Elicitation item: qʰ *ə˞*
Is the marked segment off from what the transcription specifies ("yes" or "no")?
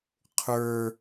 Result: no